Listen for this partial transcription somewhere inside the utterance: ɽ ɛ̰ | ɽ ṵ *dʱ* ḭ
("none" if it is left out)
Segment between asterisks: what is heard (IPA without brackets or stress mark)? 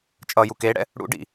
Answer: ɖ